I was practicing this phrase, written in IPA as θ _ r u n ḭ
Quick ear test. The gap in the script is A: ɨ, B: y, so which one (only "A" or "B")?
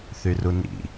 B